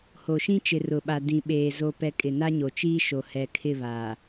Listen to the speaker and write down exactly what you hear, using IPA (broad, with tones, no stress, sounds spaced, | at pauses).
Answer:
h o˨ ʃ ĩ˦ t͡ʃ ɪ˨ r ʊ˨ ɓ a˨ d ĩ˨ ɓ eː˨ z o˨ p ɛ˨ kʼ ɪ˨ n a˦ ɲ o˨ t͡ʃ iː˦ ʃ o˨ h ɛ˨ kʰ ɪ˦˨ β aː˨